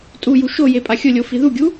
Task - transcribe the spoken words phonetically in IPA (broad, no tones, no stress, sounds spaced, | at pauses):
tʼ u j u ʃ o j e pʼ a xʲ ʊ lʲ o f i ð u ɡʲ u